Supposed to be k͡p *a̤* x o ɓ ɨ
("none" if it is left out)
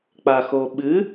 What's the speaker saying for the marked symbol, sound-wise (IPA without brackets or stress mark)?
a